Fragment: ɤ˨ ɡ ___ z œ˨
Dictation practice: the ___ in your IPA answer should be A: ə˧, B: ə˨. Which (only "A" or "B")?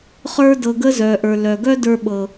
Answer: A